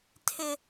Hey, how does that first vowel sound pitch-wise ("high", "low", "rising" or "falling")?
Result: high